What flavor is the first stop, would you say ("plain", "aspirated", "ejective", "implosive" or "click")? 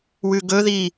plain